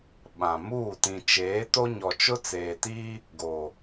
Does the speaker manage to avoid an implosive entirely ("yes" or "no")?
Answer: no